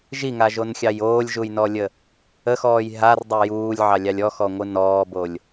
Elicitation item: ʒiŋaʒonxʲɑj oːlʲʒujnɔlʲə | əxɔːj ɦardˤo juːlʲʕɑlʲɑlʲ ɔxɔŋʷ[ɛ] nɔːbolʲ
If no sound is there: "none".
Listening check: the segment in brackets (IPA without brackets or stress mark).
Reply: ɨ